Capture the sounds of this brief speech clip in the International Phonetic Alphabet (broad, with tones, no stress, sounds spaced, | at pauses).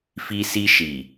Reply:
f i˦ s i˦ ʃ i˨